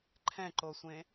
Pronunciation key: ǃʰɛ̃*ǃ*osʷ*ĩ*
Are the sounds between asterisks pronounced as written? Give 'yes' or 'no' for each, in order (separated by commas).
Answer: yes, no